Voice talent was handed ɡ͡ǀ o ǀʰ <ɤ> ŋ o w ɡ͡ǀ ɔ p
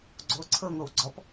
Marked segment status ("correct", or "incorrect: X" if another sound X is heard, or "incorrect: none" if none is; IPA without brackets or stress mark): correct